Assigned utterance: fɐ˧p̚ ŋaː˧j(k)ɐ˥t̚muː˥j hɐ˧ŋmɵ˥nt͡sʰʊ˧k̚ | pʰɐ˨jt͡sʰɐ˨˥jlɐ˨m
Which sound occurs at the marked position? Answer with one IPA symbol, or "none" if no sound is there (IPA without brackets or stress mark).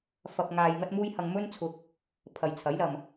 ŋ